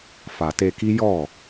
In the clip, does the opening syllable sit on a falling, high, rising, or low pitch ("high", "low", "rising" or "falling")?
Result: low